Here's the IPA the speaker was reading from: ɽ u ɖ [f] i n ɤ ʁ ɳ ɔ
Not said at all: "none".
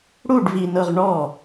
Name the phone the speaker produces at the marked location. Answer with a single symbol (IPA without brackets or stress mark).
v